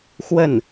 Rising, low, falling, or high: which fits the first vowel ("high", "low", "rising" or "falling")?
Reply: falling